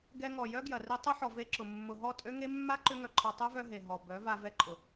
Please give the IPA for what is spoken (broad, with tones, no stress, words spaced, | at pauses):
ɡɛ˧ŋɔ˨ jœ˦ ɡjɐ˨ri˧ tˤʏ˦ħɔ˨ ve˧ǁʊ˨ mːʊ˨ɦɔ˦˨tʼø˦ŋe˦ mːa˦ǃʏ˧ ŋœ˧ǃʰɔ˧ tˤø˦vœ˧ ɦe˨ ɦɔ˨ bœ˨˦va˧ vɛ˧ǃʼʊ˨